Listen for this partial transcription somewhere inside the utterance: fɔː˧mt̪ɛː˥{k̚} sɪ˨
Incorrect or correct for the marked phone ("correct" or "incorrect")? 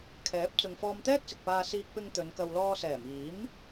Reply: correct